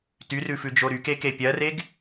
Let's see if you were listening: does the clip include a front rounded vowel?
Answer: yes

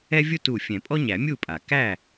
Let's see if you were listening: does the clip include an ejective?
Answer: yes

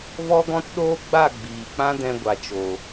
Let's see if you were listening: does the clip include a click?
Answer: no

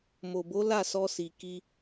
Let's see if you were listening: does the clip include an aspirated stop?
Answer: no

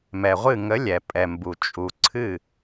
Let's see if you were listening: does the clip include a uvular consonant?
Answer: yes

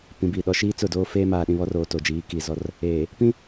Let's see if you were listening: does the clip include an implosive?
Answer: yes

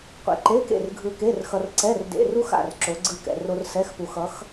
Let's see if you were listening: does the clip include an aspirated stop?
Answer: no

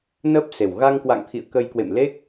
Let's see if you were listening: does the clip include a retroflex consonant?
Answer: no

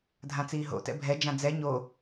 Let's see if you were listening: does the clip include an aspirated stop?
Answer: no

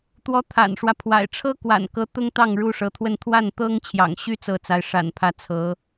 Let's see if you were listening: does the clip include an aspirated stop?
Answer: yes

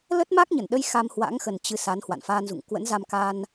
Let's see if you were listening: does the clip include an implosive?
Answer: yes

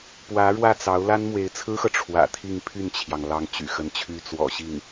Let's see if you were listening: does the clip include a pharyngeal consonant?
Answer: no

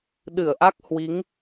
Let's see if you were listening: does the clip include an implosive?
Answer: yes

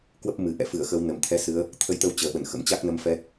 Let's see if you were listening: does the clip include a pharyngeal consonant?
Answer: no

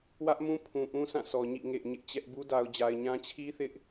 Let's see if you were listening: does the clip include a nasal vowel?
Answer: yes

